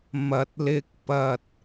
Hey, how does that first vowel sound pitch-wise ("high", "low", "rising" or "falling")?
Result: low